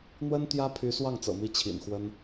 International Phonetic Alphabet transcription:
n̪ w ə˥ n t̪ j ä˥ pʰ y˧˥ s w ɑ˥˩ ŋ t͡s ɤ̰˨˩ m i˥˩ t͡ɕʰ ḭ˨˩ n x w ə˥ n

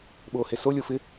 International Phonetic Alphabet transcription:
ɓ oː h e s o lʲ o f ɪ

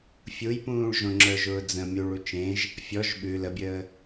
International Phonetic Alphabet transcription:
fʲ u j p ũː ɭ ʒ õ ŋ͡ǁ ə˞ ʒ ʊː d͡z ə̃ mʲ u ɭ u t͡ʃ ẽ ʒ | fʲ ɔ ʒ ɓ ʉ l ə bʲ əː

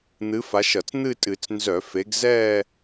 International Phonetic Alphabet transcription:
n̪ ɨ˨˦ f a˨˦ ʃ ʌ˧˩˧ t͡s n̪ ɨ˥˧ tʼ ɨ˧˩˧ t͡s n z œ˧˩˧ f e˨˦ ɡ z ɛː˥˧

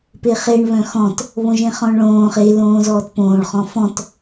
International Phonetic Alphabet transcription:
p e χ e ɳ β œ̃ x ɔ̃ t | β õ ʒ ẽ χ ɔ̃ ɳ ɭ õː χ e l õː z ɔː t p õː ɭ χ ɔ̃ f ɔ̃ t

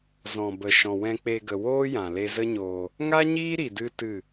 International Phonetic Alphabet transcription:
z ɔ̃˨ b ə˨ ʃ ɔ̃˨ w ɛ̃˧ k͡p e˧ ɡ ə˨ w oː˦ j ã˨ l e˧ z ə˦ ɲ oː˧ | ŋ a˦ ɲ iː˦ ɾ i˨ d ɨ˦ t ɨ˦˨

